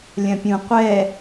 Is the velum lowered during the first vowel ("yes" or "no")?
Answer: yes